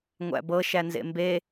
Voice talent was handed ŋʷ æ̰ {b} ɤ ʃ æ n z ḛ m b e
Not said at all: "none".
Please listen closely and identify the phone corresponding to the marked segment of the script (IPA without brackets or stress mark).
b